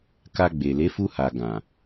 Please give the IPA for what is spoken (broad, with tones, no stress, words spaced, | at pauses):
ka˧ɡ͡be˨ le˨˦fu˧ha˨ ɡã˨